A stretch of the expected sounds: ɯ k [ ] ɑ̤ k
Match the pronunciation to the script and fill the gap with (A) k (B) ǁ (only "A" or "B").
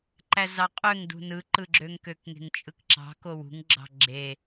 B